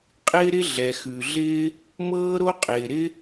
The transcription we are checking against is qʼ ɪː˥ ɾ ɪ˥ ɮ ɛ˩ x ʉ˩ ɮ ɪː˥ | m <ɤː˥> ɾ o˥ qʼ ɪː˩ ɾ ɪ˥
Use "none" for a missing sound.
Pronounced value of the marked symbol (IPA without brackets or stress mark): ɤː˥